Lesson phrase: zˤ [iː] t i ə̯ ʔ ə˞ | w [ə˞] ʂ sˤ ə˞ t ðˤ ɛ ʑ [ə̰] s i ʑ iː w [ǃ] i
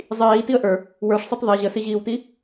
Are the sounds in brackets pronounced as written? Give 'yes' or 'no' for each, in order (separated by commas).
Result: yes, yes, no, no